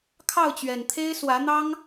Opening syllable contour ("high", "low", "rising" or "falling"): falling